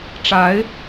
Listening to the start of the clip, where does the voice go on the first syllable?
rising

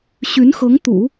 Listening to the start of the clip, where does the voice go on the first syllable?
rising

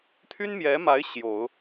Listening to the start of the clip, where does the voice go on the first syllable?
high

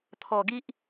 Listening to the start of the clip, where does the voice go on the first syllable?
low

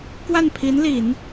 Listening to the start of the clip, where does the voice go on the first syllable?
falling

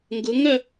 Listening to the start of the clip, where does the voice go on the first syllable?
rising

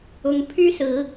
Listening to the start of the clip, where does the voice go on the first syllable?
rising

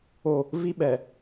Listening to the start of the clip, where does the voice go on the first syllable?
falling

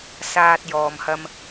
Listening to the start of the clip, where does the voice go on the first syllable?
low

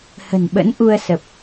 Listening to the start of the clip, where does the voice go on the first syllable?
low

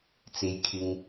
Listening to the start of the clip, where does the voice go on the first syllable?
low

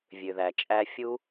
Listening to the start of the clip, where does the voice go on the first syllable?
low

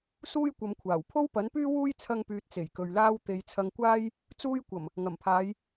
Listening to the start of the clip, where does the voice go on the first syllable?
high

